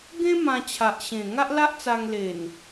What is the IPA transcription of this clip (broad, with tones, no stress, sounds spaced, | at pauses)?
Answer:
ɡ ẽ˦ m ã˧ t͡ɕʰ a˨ ʔ ɕ ẽ˨˩ ŋ a˦ ʔ l a˦ ʔ t͡s a˧ ŋ l e˨˩ n